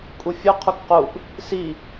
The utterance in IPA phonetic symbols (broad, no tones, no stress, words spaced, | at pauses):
kʼufʲu qʰukquʔ | si